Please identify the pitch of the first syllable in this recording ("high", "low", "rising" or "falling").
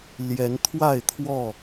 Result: rising